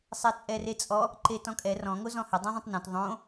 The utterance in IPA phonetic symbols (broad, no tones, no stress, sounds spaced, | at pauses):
sˤ ɛ t͡sʼ ɛ r e t͡sʼ ɔ | ǃ e t ɔ̃ kʼ ɛ r ɔ̃ ŋ o z ɔ̃ h ɘ dˤ ĩ ðˤ ɐ̃ tˤ n õ t ðˤ õ